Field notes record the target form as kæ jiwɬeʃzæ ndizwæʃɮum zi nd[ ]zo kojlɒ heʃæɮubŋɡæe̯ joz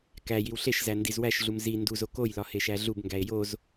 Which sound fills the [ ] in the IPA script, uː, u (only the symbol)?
u